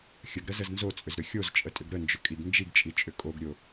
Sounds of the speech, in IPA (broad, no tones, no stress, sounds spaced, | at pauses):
xʲ ə ɡ ɾ ə z ə z n z o t͡sʼ ʏ z ɾ ʏ xʲ o z t͡ʃʼ ə tʼ ʏ ɡ ɾ ə n d͡ʒ ʏ kʼ i ɡ n d͡ʒ i ɡ t͡ʃʼ i t͡ʃʼ ʏ kʼ o ɡ ɾʲ o